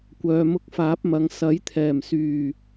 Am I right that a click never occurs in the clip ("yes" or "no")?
yes